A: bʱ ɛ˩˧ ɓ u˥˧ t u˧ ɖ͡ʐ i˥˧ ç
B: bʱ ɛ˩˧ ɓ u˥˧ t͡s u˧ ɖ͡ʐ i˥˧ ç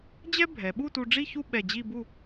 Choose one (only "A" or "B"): A